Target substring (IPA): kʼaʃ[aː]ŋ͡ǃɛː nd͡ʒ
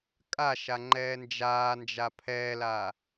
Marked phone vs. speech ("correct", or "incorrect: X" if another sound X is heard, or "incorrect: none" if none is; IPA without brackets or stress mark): incorrect: a